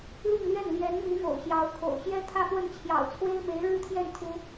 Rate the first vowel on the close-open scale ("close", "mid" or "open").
close